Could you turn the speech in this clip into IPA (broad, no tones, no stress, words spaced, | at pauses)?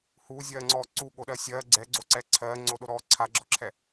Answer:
huːzʲɜːŋ͡ǀɔː ǀuɠoɗɜ sʲɜ ɡ͡ǀɛɡ͡ǀoǀɛ ǀʰɜːŋ͡ǀoɗoɾɔː ǀʰaɡ͡ǁɔǁʰɛ